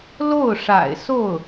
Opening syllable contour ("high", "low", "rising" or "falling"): falling